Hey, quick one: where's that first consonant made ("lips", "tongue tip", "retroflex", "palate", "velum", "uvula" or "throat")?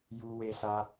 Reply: palate